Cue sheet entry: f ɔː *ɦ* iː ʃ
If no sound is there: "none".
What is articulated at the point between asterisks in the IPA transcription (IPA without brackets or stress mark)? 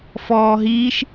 ɦ